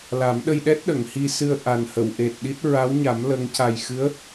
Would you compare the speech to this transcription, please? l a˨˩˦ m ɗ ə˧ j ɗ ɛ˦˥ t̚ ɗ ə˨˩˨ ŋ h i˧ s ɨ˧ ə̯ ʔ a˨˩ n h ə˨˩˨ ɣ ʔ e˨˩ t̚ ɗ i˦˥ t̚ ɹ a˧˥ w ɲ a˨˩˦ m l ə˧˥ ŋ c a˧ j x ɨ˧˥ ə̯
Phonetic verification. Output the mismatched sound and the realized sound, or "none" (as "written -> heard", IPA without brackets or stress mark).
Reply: ɣ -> w